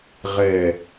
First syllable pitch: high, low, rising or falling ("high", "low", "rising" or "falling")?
low